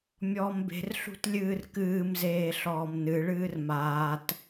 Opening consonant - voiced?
yes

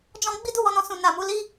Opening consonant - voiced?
yes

